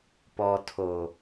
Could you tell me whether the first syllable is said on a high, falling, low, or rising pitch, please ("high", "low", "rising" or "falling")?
low